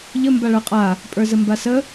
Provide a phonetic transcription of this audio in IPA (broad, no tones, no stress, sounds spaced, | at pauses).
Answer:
ʎ ə m b a ɭ ə˞ qʼ a | pʼ ə˞ z ə m b a s ə